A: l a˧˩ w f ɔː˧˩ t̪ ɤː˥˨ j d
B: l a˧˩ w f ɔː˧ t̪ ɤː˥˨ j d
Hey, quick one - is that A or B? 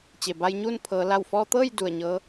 B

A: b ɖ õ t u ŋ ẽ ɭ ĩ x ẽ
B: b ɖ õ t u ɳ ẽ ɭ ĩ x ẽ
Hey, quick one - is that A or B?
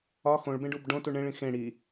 B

